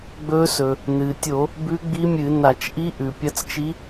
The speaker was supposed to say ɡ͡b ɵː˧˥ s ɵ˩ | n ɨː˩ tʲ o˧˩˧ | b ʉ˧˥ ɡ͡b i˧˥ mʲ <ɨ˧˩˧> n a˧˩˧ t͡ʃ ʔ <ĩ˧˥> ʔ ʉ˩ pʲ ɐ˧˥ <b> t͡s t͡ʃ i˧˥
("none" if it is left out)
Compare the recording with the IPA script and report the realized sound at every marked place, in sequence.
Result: ɨ˧˩˧, i˧˥, none

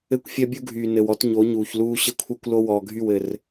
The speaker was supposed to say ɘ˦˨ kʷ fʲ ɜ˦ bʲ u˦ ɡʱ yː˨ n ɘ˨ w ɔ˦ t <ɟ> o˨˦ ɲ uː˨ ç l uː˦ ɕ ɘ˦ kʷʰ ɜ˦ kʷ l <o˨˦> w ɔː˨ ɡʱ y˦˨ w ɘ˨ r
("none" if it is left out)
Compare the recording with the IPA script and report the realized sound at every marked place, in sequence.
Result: ɲ, o˦

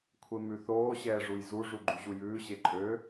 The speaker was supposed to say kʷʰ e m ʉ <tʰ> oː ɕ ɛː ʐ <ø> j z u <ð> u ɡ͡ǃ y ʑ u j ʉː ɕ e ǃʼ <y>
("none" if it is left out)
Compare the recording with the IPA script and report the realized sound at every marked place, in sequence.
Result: θ, u, ʐ, ø

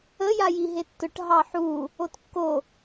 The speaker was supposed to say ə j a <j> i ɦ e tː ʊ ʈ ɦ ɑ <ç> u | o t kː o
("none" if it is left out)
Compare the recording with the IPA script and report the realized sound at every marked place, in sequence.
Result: j, ħ

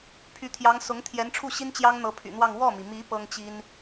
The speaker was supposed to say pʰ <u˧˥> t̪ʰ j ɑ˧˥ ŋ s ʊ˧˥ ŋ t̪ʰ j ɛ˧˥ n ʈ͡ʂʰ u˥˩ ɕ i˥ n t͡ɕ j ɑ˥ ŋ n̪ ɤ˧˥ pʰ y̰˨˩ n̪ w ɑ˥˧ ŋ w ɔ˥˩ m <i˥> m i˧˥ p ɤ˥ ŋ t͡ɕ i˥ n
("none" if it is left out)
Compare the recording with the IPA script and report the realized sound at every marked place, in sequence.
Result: y˧˥, i˩

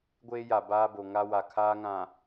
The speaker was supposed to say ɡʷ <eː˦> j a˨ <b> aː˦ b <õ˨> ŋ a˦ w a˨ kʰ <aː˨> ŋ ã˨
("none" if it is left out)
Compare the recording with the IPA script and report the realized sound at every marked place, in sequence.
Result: eː˦, b, o˨, aː˦

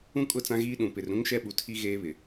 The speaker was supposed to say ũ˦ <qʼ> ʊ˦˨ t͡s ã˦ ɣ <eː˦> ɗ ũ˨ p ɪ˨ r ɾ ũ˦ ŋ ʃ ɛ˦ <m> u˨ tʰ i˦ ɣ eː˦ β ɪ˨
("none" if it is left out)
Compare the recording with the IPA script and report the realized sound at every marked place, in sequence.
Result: kʼ, iː˦, ɓ

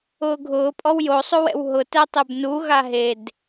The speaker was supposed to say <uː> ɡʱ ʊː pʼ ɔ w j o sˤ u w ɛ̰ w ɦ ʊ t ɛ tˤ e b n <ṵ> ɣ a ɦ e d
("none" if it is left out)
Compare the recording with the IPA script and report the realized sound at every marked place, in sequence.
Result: ʊː, u

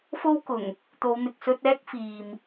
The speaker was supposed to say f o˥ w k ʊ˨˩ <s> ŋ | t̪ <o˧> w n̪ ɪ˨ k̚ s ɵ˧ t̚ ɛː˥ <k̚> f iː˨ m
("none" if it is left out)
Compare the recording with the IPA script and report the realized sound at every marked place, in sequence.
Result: none, o˨˧, k̚

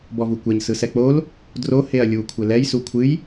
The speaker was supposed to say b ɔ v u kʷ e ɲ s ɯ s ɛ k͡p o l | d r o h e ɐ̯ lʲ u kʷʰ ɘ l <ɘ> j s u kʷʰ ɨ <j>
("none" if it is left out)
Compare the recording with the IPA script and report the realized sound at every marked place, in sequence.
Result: ɛ, j

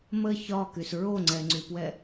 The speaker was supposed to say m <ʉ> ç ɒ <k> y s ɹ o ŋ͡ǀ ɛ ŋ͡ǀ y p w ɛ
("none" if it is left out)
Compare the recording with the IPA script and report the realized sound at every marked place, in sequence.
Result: ə, k

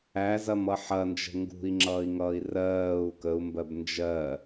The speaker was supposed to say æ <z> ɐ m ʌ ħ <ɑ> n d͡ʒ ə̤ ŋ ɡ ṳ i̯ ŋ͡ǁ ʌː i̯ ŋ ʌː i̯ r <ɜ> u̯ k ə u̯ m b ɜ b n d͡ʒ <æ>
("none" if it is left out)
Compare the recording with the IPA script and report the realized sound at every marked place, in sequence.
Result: z, ɐ, ɜː, ɜ

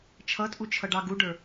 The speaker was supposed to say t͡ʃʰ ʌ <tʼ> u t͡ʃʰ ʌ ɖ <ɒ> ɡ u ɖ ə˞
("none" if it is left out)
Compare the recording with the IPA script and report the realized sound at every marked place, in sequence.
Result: tʼ, ɑ

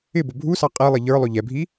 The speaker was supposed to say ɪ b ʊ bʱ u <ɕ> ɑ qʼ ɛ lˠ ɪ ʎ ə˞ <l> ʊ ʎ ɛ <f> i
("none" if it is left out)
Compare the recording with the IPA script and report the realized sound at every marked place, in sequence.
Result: s, lˠ, bʱ

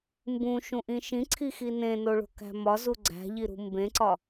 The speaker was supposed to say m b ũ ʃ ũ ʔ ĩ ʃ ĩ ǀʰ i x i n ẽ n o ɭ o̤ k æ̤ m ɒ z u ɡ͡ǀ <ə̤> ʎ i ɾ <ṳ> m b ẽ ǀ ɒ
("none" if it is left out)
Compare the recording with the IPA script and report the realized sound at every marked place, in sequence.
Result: æ̤, ṳ

